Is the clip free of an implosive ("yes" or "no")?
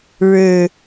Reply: yes